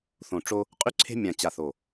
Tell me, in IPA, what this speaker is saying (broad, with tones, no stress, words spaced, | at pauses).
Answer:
θõ˨˩ʈ͡ʂo˧ | qʼy˧ǀʰe̤˧ mʲã˨˩t͡ɕa˨˩θo˨˩